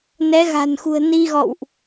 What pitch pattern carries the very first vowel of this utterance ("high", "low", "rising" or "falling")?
rising